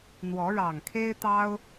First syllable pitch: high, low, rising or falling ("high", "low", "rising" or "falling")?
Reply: rising